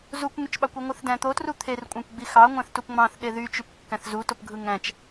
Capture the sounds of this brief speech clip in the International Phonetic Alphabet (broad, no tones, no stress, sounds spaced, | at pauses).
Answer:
z u kʷ ŋ y t͡ʃ ɓ ɑ kʷ u ŋʷ ɯ θ d æ̃ t̪ o t r u t̪ʰ e r kʷʼ ɑ̃ kʷ ɡ͡b i x ɑ ŋʷ æ̃ θ t u p ŋ͡m ɑ̃ θ ɗ e ð y t͡ʃ y p kː æ̃ θ z u t o p ɡʱ ɯ ŋ æ̃ t͡ʃ